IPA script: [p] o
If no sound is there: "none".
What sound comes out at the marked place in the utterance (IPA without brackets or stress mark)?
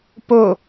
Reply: p